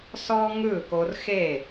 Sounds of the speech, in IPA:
sɔ˦ŋɯ˦˨ko˧rxe˦˨

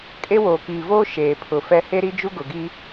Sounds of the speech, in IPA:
kʼe˦ woː˨kiː˨voː˦ ʃeː˨pʰʊ˨ fɛ˦ he˦ɾi˦d͡ʒu˦ ɡʊ˨ɡi˦

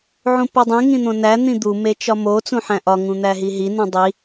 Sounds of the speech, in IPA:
ʕũpodˤĩ ŋĩn̪õnæ n̪ĩd̪u met͡ʃɒmo t͡sũħæ̃ʔɒ ŋũn̪æɦiɦi nũdˤi

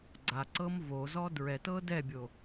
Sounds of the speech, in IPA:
ɡ͡ǀaǀɤm vozɔ dɹɛtɤ dɛbʲo

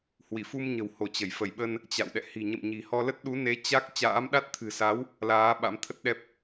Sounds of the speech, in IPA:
hwi˧˩fu˧mɲə̤˨˩who˧˩ t͡ɕə˧˩j fə˧˩jɓə˧n | t͡ɕa̰˧˨wɗɛ̰˧˨ hi̤˨˩ɲə̰˧˨mɲi̤˨˩ hɔ˧lə˦˥t̚ ɗu˨˦ne˨˦ t͡ɕa˦˥k̚ t͡ɕa̰ː˧˥mɗa˦˥t̚ t̪ʰɨ̤˨˩sa˨˦w | laː˨˦ ɓa̰˧˥mt̪ʰə˦˥t̚ɗɛ˦˥p̚

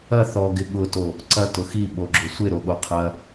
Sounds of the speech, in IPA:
ɐ θɔɡɪ ɠʊto | ǀɐ tʊxi ɓoɡ͡ǁʊsʷɪ ɾoɠoqʰɐ

